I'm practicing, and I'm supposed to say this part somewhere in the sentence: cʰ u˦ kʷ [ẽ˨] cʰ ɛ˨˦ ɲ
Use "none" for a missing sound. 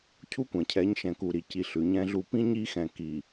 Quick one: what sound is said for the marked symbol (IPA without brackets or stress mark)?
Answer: ɛ̃˨